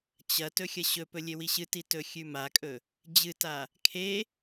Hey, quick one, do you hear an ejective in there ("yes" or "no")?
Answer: yes